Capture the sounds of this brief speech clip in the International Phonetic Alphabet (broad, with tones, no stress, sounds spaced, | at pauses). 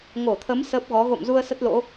ŋ o˧˩ t̪ʰ ə˨˦ m s əː˦˥ p̚ ɣ ɔ˨˦ ɣ o̰˧˨ m z u˧ ə̯ s ə˦˥ t̚ l o̰˧˥